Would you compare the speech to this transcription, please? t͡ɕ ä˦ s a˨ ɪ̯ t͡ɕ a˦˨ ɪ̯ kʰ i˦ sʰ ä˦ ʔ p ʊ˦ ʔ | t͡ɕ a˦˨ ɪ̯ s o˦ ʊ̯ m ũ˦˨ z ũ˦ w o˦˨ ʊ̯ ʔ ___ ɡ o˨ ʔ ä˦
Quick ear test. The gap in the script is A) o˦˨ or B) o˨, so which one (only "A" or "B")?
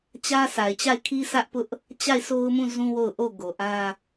A